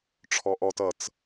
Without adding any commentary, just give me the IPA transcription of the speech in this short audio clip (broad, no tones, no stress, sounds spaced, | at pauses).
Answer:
ʈ͡ʂʰ ɔ ʔ ɔ t ʌ t͡s